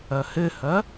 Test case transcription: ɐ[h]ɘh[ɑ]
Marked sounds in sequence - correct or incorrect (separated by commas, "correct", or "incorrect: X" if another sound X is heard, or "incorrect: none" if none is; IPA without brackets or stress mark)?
correct, incorrect: ɐ